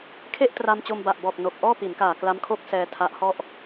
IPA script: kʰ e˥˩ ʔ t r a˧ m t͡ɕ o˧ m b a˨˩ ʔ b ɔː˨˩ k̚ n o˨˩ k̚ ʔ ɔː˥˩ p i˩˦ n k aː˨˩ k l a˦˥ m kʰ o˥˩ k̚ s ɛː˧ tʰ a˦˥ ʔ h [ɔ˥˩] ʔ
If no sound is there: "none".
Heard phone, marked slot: ɔ˥˩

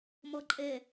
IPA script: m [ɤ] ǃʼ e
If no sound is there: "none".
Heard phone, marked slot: ɤ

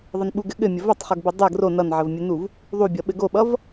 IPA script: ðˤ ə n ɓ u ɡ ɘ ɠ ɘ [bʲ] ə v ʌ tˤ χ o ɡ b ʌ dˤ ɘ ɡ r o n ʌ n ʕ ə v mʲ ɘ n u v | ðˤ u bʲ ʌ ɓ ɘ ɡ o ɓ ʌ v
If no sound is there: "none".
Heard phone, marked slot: mʲ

